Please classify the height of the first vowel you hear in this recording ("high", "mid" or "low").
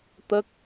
mid